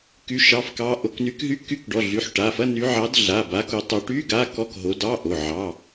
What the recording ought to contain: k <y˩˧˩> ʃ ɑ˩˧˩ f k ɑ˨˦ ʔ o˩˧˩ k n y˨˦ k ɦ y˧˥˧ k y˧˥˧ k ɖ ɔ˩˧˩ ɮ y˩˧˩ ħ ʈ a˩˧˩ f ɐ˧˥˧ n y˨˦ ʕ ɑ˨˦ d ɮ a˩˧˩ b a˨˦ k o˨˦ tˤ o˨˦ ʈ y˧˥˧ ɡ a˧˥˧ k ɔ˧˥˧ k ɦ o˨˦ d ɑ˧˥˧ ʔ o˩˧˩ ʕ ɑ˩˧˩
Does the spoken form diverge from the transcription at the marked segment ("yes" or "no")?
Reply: no